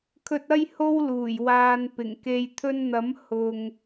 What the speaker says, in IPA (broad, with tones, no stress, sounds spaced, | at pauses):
kʰ ɵ˨ t̚ ɐ˧ j h o˧ w l uː˨˩ j w aː˧ n p ɪ˨˩ ŋ k e˨ j t̪ʰ ɵ˧ n n̪ ɐ˨˥ m h ʊ˧ ŋ